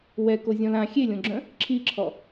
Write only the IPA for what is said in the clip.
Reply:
wɛ kozʲɔ̃lã xʲelʲõɡ͡ǁœ̃ | ǁʰiǁʰɔ

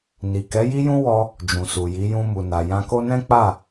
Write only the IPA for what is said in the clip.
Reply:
ni˨kɛ˨˦ ji˦jũ˦wɔ˧ | d͡ʒũ˨su˨ji˨˦ jũ˧mu˨na˨ jã˧ko˦ nɛ̃˦k͡pa˦˨

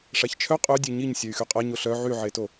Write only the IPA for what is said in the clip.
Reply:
ʂaçt͡ʃʰœ qʼœ dʲeɲiɲ sʲœy̯xyqʼa ɲoɬœ ʕyʕeto

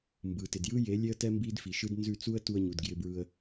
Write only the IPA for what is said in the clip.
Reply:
mbɯ˨tɪ˨djɯ˦je˨˦ lʲe˦ə̯tɛ˦ mbi˦dfi˨ʃɯ˦d nzʉ˦˨t͡su˦ə̯ tu˧ə̯ɲu˨dɡjɪ˧bɹɯ˧ə̯

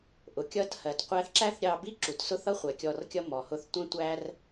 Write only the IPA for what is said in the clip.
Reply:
ʔʊ˨ kʲʌ˦thɜ˨tqʷæ˦θ ǁæ˦θɾʲɑ˧bi˦ ǁu˨tsʊ˦θʌ˦ χʷɛ˨kʲɔ˧rkʲʌ˦ mɔ˨hʊ˦θ tʷɛ̃˦ tʷæ˦r

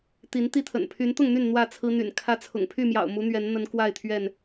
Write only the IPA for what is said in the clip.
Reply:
t̪i˨˦nt̪i˥˨t̪ʰə̰˨˩n pʰy˨˦nt̪ʊ˥˨ŋn̪y˥˨n n̪wä˥˨t͡sʰɹ̩˦ n̪y̰˨˩n kʰä˦t͡sʰʊ̰˨˩ŋ pʰy˥˨mjɑ̰˨˩ʊ̯mu˨˦ n̪ɥɛ˨˦nn̪ə˨˦n kwa˥˨ɪ̯t̪ʰɥɛ˥˨n

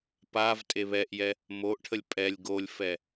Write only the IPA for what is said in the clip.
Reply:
pav tʼeβɛʔjɛ | moʔʈʰəlʲ pʼɛlʲ ɡolʲfɛ

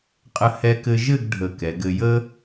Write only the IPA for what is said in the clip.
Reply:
qʼə˧ hɛ˧kɘ˧ʒɘ˥˧ɡ ɖʱə˧˩kɛ˩˧ɡɘ˧ jə˥

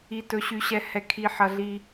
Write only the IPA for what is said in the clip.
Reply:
i˩tɵ˩ɕy˩ɕɛ˩ hɛ˩kʰi˩ħɐ˩ɮi˩

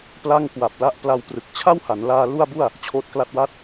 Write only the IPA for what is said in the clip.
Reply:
pla˥˩ŋkwa˨˩p̚ la˦˥ʔpla˧wprɯ˨˩k̚ t͡ɕʰa˥˩wha˩˦nlaː˧ lu˥˩a̯bu˥˩a̯ | t͡ɕʰoː˦˥t̚kla˥˩t̚wa˥˩t̚

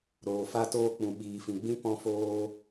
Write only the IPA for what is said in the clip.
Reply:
ɾoː˨fa˧toː˧ k͡pũ˨ɓiː˨fĩ˨ɡ͡bĩ˦ pɔ̃˧foː˧

